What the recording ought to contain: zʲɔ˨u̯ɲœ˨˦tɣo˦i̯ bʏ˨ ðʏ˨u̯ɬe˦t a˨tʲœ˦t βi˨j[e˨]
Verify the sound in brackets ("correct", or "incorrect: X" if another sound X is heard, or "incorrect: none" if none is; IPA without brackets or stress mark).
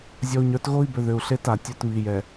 incorrect: ɛ˨